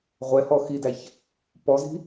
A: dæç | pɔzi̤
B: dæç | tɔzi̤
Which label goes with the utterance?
A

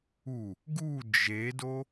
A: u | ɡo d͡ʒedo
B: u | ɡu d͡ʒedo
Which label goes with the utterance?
B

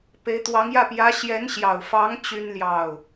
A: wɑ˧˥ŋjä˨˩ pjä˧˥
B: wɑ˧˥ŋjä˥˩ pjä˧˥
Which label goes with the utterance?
B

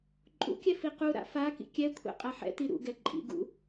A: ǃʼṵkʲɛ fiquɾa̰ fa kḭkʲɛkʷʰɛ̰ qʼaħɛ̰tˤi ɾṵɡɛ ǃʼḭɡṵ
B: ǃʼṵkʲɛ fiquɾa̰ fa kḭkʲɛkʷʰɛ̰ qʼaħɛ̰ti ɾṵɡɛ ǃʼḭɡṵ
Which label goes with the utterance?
B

